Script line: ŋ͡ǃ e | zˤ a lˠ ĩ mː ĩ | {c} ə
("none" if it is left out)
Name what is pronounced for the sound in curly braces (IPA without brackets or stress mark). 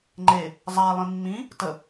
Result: t